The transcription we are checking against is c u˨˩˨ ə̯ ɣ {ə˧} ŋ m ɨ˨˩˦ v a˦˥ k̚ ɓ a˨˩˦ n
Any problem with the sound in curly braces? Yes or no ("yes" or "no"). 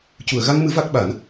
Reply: yes